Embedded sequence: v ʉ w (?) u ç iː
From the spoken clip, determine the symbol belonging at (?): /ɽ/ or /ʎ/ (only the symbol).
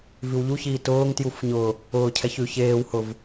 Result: ʎ